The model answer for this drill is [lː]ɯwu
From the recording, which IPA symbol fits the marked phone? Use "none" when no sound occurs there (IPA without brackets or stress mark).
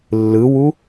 lː